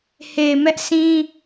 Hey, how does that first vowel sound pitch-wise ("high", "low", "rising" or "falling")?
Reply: low